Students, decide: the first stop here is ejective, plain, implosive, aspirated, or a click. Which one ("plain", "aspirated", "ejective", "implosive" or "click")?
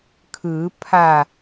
aspirated